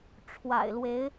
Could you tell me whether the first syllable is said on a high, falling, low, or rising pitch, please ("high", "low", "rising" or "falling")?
low